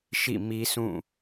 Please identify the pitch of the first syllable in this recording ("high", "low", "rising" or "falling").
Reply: falling